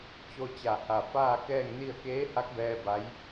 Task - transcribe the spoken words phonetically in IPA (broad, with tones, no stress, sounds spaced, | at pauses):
t͡ɕ o˧ t͡ɕ a˧˩ h a˧˩ f aː˥˨ k ɛː˥˨ ŋ n i˥˨ ə̯ k eː˧˥ h a˧˥ k̚ b ɛː˧ b a˧˥ j